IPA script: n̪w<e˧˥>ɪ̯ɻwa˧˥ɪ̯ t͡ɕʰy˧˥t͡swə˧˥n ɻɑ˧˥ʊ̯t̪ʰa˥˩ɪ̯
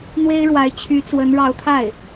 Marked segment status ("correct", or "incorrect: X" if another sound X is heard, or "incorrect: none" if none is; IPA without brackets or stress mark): incorrect: e˥